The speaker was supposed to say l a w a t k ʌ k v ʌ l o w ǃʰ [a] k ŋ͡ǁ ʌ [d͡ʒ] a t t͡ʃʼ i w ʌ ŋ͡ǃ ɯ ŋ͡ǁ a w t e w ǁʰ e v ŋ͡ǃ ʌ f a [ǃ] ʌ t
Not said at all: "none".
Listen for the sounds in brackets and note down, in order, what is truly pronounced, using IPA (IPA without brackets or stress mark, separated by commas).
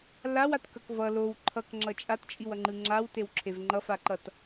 ʌ, t͡ʃʼ, ǃ